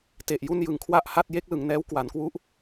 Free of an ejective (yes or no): yes